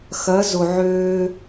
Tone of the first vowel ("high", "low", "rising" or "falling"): rising